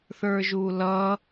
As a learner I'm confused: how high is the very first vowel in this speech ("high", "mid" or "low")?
mid